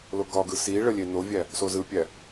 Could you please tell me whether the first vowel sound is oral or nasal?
oral